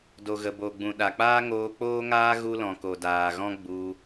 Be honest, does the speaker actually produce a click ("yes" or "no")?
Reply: no